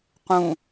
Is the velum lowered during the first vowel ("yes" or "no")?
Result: yes